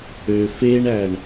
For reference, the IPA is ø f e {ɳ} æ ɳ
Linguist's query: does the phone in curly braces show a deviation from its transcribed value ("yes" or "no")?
no